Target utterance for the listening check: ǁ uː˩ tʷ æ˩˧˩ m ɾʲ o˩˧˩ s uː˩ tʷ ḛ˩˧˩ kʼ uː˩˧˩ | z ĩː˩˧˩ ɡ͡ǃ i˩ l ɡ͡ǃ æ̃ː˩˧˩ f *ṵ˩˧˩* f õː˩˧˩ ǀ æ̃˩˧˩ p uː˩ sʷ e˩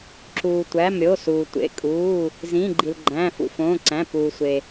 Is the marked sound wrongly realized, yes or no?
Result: no